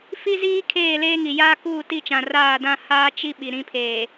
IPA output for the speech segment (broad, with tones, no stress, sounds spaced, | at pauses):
f i˦ z iː˦ kʰ eː˦˨ l eː˦ ŋ i˨ j aː˦ k uː˦˨ t i˦˨ t͡ʃ ã˨ r aː˦˨ d ã˦ h aː˦ t͡ʃ i˦ ɓ i˨ ɾ ĩ˦ pʰ eː˨